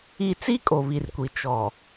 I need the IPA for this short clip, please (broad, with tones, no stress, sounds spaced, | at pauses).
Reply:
i˦ t͡s i˦ kʼ o˨ β i˨ r kʷ i˨ t͡ʃ ɔ˨